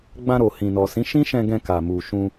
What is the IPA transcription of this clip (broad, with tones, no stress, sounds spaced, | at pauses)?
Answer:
ɡ͡b ã˧ ɾ o˨ h ĩ˨ n ɔ˨ s ĩ˨˦ ʃ ĩ˦ ʃ ɛ̃˧ ɡ ɛ̃˧ k a˨ m u˨ ʃ ũ˧